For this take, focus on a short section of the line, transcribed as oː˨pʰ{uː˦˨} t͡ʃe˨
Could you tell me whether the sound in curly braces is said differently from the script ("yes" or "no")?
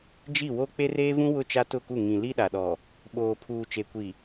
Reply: yes